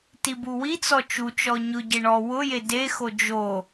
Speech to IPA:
t i b u w i t͡s ɔ t͡ʃ u t͡ʃ ɔ ɲ ʊ ɟ ɪ ɳ ɔ w ʊ j e d e x o d͡ʒ o

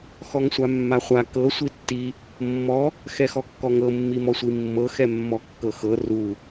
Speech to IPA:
x ɔ ŋ sʷ a mː a χʷ a k ɤ sʷ i tː i | mː ɔ | x ɛ x ɔ kː ɔ ŋ ɤ mː i m ɔ sʷ i mː ɤ x ɛ mː ɔ kː ɤ x ɤ r u

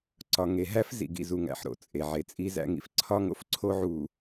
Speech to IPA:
ǀ ɒ˨ ŋ e˨ ɦ æ˦ f z ḭ˨ ɡ ḭ˨ z u˨ ŋ æ̰˨ ħ ɾ o̰˨ t͡sʼ e˨ ʕ e˨ t͡sʼ i˦ z æ̰˦ ŋ ḭ˨ f ǀʰ ɒ˦ ŋ o̰˦ f ǀʰ o˦ ʕ u˨

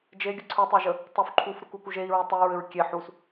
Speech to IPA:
d͡ʒ e ɡʲ ə ǀʰ u tˤ e ʒ ə | tˤ u f ǃʰ u f ɾ u k u k u ʒ e i̯ ɹ u tˤ e ɹ ɘ ɹ kʲ e ħ u s

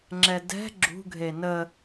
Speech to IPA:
ŋ͡ǁ ɛ d ɛ̤ ɡ͡ǁ ṳ ɡʱ e n ə

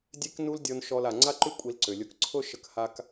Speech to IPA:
dʲ e˦ k n u˧ l dʲ ɔ˧ n ʃ ɔ˧ l a˨ ŋ͡ǀ a˦ ǃ ʉ˦ kʷʼ i˧ l ǀ ʏ˨ lʲ ʊ˧ k ǀʰ ʊ˦ ʃ ə˧ k h a˦ k

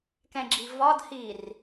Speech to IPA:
k ɛ̃ ɡ͡ǁ i v ɒ d h i r

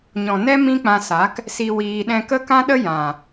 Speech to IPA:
ɲ ɔ̃˨ n ɛ˦ m ĩ˦ k͡p ã˧ s a˨˦ k | s i˧ w iː˧ ɗ ɛ̃˧ k ə˦ k ã˦ ɗ ə˦ j ã˨

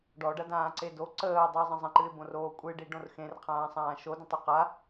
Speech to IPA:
ɖ ɔ ɖ ɐ d ãː ǀ e d o ǀ əː ʊ̯ dˤ ɨ ʊ̯ zˤ ə̃ zˤ ə̃ ǃ ɨ ɪ̯ b õ r oː kʷʼ ɨ ɖ i ɖ õ r x ẽ r qʰ ãː sˤ ãː ʃ o d ə̃ tˤ y q a

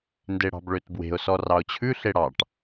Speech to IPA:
n d e ɽ ɑ̤ b ɭ ø t b w e̤ ʊ̯ s ɔ r ɑ ʊ̯ t͡ɕʰ ʉ ɬ e ɽ ɑ ʈ

